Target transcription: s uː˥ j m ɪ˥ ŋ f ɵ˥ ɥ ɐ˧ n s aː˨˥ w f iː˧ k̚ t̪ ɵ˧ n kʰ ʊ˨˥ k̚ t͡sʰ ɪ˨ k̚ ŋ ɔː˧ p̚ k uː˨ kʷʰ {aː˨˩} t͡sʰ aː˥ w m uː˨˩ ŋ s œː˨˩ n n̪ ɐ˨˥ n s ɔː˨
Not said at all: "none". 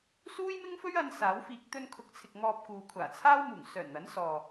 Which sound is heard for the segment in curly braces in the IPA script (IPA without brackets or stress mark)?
aː˨˩